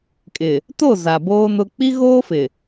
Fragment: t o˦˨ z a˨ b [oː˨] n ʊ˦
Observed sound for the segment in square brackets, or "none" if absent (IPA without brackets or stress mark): oː˦